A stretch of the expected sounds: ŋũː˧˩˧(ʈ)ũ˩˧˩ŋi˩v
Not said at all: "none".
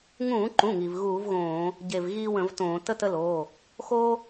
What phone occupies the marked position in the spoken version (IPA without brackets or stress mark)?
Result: ǃ